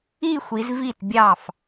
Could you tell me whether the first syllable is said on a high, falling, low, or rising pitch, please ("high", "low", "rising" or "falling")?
falling